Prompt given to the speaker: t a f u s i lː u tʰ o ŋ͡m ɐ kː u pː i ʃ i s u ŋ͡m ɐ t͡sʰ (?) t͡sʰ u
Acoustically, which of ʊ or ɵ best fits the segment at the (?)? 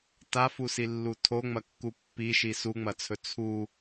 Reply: ɵ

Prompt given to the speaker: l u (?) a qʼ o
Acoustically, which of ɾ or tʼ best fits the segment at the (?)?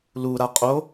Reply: ɾ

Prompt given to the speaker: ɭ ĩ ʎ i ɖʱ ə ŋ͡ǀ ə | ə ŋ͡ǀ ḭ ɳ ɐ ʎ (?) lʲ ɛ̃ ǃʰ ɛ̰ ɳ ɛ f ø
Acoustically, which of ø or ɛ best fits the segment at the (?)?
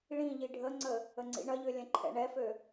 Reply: ø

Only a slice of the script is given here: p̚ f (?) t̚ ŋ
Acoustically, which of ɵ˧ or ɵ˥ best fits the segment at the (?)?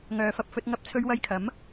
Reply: ɵ˧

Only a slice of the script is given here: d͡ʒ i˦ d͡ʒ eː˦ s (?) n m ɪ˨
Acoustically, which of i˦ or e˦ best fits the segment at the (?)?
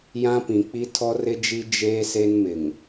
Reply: e˦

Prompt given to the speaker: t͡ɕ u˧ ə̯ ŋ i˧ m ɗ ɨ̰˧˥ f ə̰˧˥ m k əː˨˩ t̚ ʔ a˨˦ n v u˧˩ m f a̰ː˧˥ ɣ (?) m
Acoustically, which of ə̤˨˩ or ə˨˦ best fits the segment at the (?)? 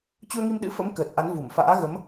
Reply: ə˨˦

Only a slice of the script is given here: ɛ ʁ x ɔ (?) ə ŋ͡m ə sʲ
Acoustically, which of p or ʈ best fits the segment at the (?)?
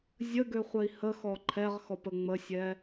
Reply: p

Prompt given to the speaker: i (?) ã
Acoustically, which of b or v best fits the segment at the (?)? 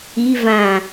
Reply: v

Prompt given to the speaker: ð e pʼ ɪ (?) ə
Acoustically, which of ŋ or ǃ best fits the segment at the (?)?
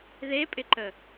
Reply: ǃ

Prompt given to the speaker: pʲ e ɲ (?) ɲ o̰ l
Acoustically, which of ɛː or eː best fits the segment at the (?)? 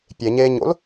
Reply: eː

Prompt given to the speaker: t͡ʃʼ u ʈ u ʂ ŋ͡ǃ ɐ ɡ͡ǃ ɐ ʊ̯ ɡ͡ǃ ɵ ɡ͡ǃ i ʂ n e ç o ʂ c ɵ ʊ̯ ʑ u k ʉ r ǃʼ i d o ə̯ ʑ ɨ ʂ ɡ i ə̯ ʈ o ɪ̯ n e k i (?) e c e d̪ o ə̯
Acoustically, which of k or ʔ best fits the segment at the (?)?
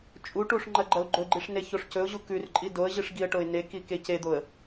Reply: k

